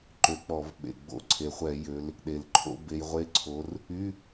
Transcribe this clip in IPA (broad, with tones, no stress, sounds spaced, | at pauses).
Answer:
ǃ ø˨˦ k͡p ɔ˧˩˧ v ɓ ḛ˨˩ ɡ͡b o̰˧˩˧ ǀʰ e˨˩ χʷ ɛ˧˩˧ j ø˨˦ l | ɗ e˨˩ l ǃʰ o̰˧˥˧ b e˨˦ j ʁʷ e˧˥˧ ǀʰ o˨˦ r | y˧˥˧